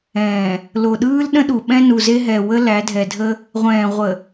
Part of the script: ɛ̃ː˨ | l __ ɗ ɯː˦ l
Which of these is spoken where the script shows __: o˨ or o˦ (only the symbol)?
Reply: o˨